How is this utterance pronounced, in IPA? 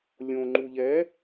lʲ õ ŋ͡ǃ u ʎ ɛ

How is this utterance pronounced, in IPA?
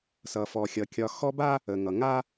s ʌ˩ f ɔ˩ xʲ ʌ˩ kʲ ɒ˨ x ɔ˦ b a˥ | ə˩ ŋ ʌ˩ ŋ a˥

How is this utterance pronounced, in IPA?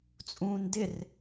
t͡sʼ ũː n d ɪ r

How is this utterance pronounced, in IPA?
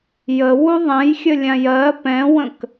j ə w u ðˤ ɛ̃ j xʲ ə lʲ ã j ɜ p ɛ̃ w ə̃ k

